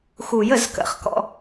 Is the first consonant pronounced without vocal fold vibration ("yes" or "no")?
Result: yes